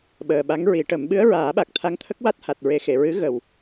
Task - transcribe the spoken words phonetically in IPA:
ɓəː˨˩ɓa˧˥ŋɹi˨˩˦ʈə˨˩˦m ɓɨ˧˥ə̯ɹaː˨˩˦ɓa˨˩k̚ t̪ʰa˧˥ŋt̪ʰə˦˥k̚wa˦˥t̚ ha˨˩t̚ɹe˨˩˦ xe˨˩˨ɹɨ˧˥ ɣə˨˩w

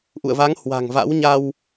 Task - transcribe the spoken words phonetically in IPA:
ʔṵ˧˨ə̯va˨˦ŋ hwa̤˨˩ŋva̰˧˥wɲa˧w

